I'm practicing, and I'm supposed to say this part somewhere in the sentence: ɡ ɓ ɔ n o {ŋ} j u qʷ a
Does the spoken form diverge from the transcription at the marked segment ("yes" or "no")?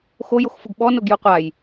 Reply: yes